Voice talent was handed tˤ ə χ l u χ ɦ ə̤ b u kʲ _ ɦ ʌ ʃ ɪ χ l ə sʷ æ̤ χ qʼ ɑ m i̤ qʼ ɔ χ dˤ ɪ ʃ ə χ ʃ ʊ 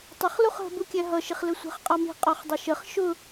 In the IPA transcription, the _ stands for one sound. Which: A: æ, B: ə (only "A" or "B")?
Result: A